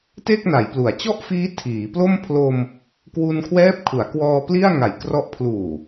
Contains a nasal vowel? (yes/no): no